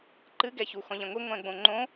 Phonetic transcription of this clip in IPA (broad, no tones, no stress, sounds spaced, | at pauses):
ǃ ɨ ɡ ɛ ç u x ɔ̃ ʎ ɛ̃ ŋʷ i ŋʷ ɛ̃ ɡ͡b õ ŋ͡ǃ õ